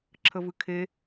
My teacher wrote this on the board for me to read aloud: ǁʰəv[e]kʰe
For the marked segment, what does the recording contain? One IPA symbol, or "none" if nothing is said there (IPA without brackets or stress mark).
ɨ